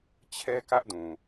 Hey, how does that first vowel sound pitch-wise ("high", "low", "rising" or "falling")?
high